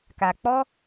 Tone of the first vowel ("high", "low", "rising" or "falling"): low